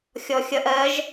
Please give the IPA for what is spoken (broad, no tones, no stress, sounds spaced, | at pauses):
xʲ ɔ xʲ ʌ ʔ ɜ ʒ